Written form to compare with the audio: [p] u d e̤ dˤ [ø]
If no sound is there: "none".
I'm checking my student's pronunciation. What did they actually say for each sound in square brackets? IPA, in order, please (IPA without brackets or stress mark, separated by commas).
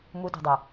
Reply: m, e